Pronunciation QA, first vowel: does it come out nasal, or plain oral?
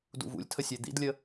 oral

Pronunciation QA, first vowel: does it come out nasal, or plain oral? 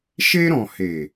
oral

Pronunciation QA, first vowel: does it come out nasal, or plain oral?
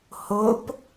oral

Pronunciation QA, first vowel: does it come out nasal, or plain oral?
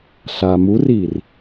oral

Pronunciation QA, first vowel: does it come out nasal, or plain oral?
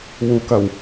oral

